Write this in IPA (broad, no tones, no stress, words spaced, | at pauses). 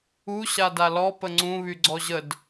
u ɕadalɔ pəŋ͡ǀũ βyɡ͡ǀɔʑəd